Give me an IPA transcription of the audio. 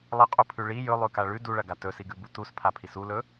lˠ ɐ qʼ u pʰ ʉ ɭ i j ɵ lˠ ʉ k a ɭ ʉ d u ɭ ɐ ɡ a t ɵ s i ɡ ʉ b u t u s pʰ a pʰ i s u l ɵ

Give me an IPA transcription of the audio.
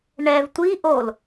ɳ ɛ v tʷ i ʔ o l

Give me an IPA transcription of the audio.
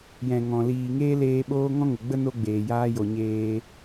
j ɛ̃˨ ŋ ɔ̃˨ l iː˨ ŋ eː˦ l eː˧ ɓ oː˦ ŋ ɔ̃˦ ŋ ə˨ ɡ͡b ə˦ n o˦ ɡ͡b eː˨ j aː˦ j o˨ ɲ eː˧

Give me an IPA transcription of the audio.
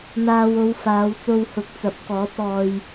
n̪ aː˨ w o˨˧ w f aː˨˧ w t͡s o˧ w h ʊ˨˥ k̚ t͡s ɐ˨˥ p̚ k ɔː˨˥ t̚ ɔː˧ j

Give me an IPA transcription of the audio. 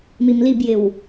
m i m l i b j ɪ w

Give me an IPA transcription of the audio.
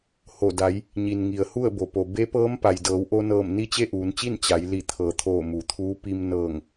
h o˧˩ d a˩˧ j | ɲ i˩ n ŋ i˩ ə̯ h u˥˨ ə̯ b o˩ p o˩ b e˧˥ p ɤː˧˥ m p a˩ j d ɤː˩˧ w ʔ o˧ n ɤː˧˩ m n i˧˥ t͡ɕ e˥˨ ʔ uː˩˧ n t͡ɕ i˥˨ n t͡ɕ a˩˧ j l i˧˩ t̪ʰ ɤː˩˧ t̪ʰ oː˧˩ m u˩˧ t̪ʰ uː˧˥ p i˧ m n ɤː˧˩ ŋ

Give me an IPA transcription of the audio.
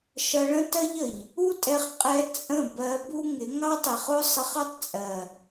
ʃ ʌ˧ ɭ ə̃˦ t ɜ˦ ʎ ə˨ ʎ | u˦ tʼ ɛ˧ χ qʼ ɛ˧ t͡sʼ ə̃˦˨ b ɜ˧ b u˦ ŋ ɪ˨˦ ŋ ɑ˦ tˤ i˨ χ ʊ˦ sˤ ɪ˧ χ ʌ˦ tˤ t͡sʼ ɜ˨

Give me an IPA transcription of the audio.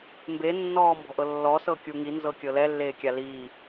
m b e nː ɔː m b ɔ̤ ʔ ɤ lː ɔ s ɤ kʲ u ŋ i n z ɤ kʲ ɤ l ɛ lː eː kʲ a l iː

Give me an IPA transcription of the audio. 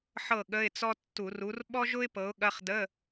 ħ ɤ˥˩ ɠ ə˧˥˧ ɪ̯ t͡s ɔ˥ tː u˧˩˧ r u˨˥ r ɓ ɔ˥ ʒ ʊ˥ ɪ̯ p ɤ˨˥ ʊ̯ ɠ ɐ˧˥˧ χ d ə˧˥˧

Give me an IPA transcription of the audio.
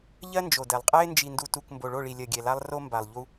ʎ ɜ˦ n d͡ʒ o˨ d ɛ˨ lˠ qʼ ɛ˦ ɪ̯ n d͡ʒ i˨ n d u˨ t u˨ k m b o˨ ɭ o˦˨ ɭ i˨ lʲ ɜ˨ ɡʲ ɛ˨ l a˦ lˠ r o˦ m b a˨ lˠ ʎ u˦

